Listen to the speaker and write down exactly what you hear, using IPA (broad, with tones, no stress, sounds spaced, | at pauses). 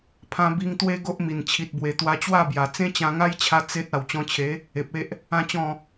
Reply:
pʰ ã˧ b i˧ ŋ t̪ w e˦ ɡ o˦ ʔ m i˨˩ n t͡ɕʰ i˨ t̚ b w e˨˩ t̪ w a˧ t͡ɕ w a˥˧ b j a˨˩ t͡s ẽ˦ t͡ɕ ã˧ ŋ a˦ j t͡ɕʰ a˧ t͡s e˦ t̚ a˨˩ w t͡ɕ ɔ̃˧ t͡ɕʰ e˨˦ | e˨ p̚ e˦ ʔ | ã˥˧ t͡ɕ ɔ̃˥˧